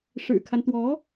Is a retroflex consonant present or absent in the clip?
present